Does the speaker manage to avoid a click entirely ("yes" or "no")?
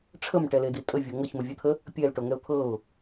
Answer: yes